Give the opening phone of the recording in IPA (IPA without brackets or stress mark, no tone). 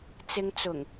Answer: t͡s